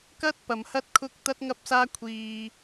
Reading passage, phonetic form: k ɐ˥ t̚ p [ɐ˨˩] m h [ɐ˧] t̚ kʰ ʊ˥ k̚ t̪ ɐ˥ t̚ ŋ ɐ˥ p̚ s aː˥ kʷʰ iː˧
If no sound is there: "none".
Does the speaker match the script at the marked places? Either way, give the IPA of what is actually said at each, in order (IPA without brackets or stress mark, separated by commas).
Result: ɐ˨, ɐ˥